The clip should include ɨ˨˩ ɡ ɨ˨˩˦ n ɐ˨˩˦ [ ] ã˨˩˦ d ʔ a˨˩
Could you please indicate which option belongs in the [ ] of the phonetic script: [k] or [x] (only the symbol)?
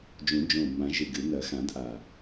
x